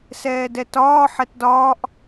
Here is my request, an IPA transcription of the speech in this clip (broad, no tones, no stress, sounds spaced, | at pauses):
s ɛː d ɛ t ɒː ħ ɛ t d ɒː ʔ